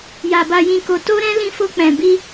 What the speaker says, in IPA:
ja˨ ba˨jĩ˨ko˨ to˧ɾɛ̃˧ lĩ˧fo˧k͡pɛ̃˨ bi˧

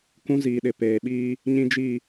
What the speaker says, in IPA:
kũ˦ziː˨ɗɪ˨ peː˨ɓiː˦ | ɲĩ˦d͡ʒi˦˨

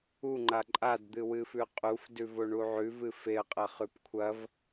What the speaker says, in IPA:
uŋ͡ǃa ǃʼadd̪ɨwɨfʉ qʼufdʉvo ɳuʕʉvɨ feə̯qʼɐ χʉpkʷʰɐv

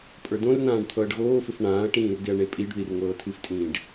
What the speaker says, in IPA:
pʼə˞dõrnãːɖ t̪ʰɤːɖɣoːfɪf ɳãːɐ̯ʈĩːr dɪɐ̯ɳepʼiɖðir ŋɤːtʰɨftʼĩːɖ

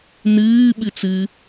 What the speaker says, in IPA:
nɨːɓɨt͡s ɨ

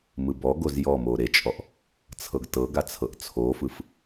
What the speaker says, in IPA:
mɯbɔɡoz jɔmo ɾet͡ʃʼɔʔ | t͡sʰɤɡtɤɡa t͡sʰɤʔt͡sʰofɯf

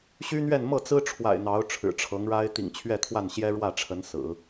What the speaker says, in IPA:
ɕy˥n̪ɥɛ˥˧n mɤ˥˩t͡sɹ̩˥ʈ͡ʂʰwa̰˨˩ɪ̯ n̪ɑ˧˥ʊ̯ʈ͡ʂʰɻ̩˨˩ʈ͡ʂʰɤ˧˥ŋɻa˥ɪ̯ t̪ḭ˨˩ŋt͡ɕʰɥɛ˥˧t̪ʰwa˥˩nɕjɛ˥ ɻwä˥˩ʈ͡ʂʰə˧˥nsɹ̩˨˩˦

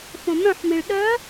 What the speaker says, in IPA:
fõmœ̃ħmĩɭ ɗœ

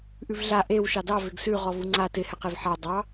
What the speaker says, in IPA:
ʔʉvɮa ʔew ʃɑdɑ vɪɡsʉ ʁɔvuŋ͡ǀa tɪ hɛqevħa dˤɑ

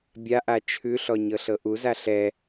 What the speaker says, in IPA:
bʲaʔa t͡ʃʰʉɬɔ ɲɤɬɤʔuza ɬɛ

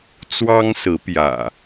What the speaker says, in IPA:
t͡swɑ˦ŋsɹ̩˨˦pjä̰˨˩

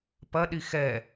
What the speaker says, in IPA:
pɐɗi xɛ

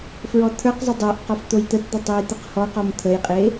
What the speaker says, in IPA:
fɹɔt̪ʰə˞qzˤə dˤə˞ʔ qɔft̪ojt̪ətd̪ə tˤejt̪əqhɔqɔm t̪ʰəjqʼe

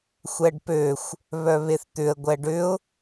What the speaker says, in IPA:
xʷɛɖpøxʷ | βœβeθt̪ʏə̯ ɡʷɛɖʏʊ̯

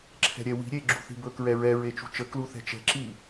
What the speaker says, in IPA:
ǁʰɛ̤ɾʲɛwi̤ ɾʲe ɡ͡ǁṳθi̤bɵ kɹɛɹɛ ɹet͡ʃṳt͡ʃə kluθɛ̤t͡ʃɛ̤ ǁi

